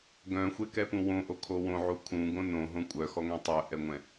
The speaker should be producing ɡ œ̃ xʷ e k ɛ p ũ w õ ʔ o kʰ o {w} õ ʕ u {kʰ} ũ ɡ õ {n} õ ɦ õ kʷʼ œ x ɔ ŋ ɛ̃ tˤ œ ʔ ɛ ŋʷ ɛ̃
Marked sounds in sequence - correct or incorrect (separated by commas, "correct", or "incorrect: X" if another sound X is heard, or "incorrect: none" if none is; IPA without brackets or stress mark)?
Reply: correct, correct, correct